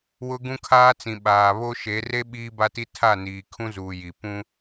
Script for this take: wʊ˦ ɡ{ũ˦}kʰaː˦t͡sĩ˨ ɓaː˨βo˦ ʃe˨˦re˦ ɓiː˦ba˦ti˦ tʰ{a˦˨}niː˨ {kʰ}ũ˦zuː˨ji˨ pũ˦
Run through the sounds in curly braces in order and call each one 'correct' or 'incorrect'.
correct, correct, correct

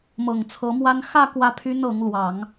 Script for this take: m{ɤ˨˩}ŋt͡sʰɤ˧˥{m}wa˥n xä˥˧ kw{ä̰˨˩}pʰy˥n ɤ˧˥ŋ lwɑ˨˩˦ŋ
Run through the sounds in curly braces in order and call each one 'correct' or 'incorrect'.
correct, correct, incorrect: ä˥˩

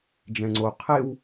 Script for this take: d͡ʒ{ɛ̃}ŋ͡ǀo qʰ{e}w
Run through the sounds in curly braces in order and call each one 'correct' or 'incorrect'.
correct, correct

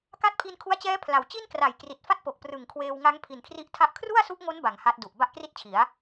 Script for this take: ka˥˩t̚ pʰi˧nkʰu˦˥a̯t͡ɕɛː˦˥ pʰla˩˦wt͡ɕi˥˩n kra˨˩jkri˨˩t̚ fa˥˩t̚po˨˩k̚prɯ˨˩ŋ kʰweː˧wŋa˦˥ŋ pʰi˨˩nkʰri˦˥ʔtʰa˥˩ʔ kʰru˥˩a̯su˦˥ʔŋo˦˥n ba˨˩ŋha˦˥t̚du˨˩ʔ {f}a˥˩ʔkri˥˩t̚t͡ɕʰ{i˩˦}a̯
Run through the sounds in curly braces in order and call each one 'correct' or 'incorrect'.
incorrect: b, correct

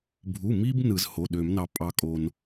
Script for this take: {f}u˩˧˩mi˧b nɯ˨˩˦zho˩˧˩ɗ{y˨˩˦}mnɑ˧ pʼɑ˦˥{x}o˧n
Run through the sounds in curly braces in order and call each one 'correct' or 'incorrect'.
incorrect: bʱ, incorrect: ø˨˩˦, incorrect: kʼ

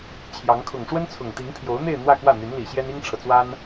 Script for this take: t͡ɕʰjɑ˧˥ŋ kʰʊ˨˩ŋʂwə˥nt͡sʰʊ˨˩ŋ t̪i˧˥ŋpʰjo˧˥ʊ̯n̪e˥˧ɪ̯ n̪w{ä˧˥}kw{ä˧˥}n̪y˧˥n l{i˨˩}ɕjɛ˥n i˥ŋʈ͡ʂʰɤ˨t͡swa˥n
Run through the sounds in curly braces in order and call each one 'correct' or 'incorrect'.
incorrect: ä˥˧, incorrect: ä˥˩, correct

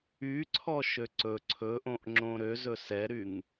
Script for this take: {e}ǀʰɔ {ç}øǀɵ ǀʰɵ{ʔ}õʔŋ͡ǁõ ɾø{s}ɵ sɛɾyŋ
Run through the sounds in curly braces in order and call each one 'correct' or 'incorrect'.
incorrect: y, incorrect: ʃ, correct, incorrect: z

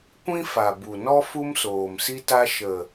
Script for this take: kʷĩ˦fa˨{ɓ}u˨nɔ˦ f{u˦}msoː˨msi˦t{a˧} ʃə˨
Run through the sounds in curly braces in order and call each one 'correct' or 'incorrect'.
incorrect: b, correct, incorrect: a˦

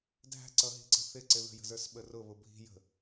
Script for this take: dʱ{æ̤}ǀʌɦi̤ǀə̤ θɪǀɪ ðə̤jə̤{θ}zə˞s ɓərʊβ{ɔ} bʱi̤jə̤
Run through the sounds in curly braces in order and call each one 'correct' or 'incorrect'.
correct, incorrect: none, incorrect: ʊ

